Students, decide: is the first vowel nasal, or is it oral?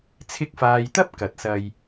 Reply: oral